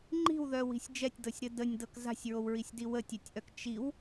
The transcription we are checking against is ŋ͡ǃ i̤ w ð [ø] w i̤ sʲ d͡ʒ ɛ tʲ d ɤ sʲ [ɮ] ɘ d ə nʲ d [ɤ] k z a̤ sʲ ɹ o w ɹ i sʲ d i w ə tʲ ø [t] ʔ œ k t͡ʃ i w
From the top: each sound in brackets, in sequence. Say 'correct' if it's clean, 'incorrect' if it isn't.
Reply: incorrect: œ, incorrect: ɾ, correct, incorrect: tʲ

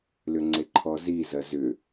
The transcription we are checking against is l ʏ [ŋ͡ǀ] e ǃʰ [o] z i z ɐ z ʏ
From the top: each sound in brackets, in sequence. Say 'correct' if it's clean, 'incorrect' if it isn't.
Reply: correct, incorrect: ɔ

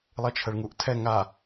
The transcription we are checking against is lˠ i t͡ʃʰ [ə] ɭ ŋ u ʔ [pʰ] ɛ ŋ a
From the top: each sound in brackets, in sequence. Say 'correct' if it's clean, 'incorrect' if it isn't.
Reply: correct, incorrect: tʰ

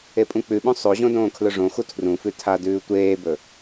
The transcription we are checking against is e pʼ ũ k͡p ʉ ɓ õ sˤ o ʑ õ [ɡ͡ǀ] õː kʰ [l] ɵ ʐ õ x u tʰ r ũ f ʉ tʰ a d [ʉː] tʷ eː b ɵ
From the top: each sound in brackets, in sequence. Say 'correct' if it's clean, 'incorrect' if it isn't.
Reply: incorrect: d, correct, correct

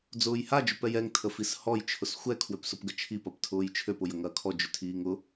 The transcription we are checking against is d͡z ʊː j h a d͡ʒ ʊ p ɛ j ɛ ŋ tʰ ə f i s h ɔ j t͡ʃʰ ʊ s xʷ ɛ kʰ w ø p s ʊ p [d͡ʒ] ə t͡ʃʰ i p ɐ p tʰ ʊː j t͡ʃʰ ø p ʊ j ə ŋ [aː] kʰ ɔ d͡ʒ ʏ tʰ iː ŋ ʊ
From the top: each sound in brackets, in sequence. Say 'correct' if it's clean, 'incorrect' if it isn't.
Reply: incorrect: ɡ, incorrect: ɐː

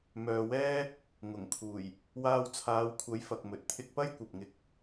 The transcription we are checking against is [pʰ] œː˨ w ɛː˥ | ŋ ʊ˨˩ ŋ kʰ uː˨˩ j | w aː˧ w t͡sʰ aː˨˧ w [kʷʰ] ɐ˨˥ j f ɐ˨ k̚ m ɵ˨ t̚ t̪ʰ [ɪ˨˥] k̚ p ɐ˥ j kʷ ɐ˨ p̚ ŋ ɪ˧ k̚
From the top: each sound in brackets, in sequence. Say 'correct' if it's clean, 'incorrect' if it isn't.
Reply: incorrect: m, correct, incorrect: ɪ˧

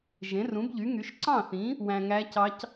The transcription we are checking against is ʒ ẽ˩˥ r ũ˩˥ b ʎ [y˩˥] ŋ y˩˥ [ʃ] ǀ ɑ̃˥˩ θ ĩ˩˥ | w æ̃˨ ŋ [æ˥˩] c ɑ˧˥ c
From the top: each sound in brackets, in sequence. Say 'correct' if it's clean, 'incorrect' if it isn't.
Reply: correct, correct, incorrect: æ˧˥

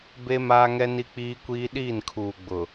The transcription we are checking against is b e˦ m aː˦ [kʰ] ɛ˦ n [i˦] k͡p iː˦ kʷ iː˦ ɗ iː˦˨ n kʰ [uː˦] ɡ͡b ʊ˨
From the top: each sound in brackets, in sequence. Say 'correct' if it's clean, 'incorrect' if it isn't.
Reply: incorrect: ŋ, correct, incorrect: uː˨

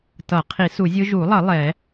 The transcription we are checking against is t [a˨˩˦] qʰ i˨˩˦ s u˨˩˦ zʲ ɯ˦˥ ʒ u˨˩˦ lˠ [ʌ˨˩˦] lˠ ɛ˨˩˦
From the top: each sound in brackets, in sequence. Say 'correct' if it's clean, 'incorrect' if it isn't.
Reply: incorrect: ʌ˨˩˦, correct

